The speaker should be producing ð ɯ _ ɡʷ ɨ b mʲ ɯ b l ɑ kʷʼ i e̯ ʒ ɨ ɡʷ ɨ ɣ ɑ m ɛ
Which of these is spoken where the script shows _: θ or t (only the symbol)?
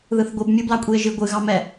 θ